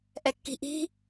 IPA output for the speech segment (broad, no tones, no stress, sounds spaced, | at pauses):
ʔ ɛ kː i̤ ʔ i̤